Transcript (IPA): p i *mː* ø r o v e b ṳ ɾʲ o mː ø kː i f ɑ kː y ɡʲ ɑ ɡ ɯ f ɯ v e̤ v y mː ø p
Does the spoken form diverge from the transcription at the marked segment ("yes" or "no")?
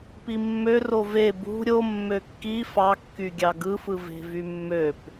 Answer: no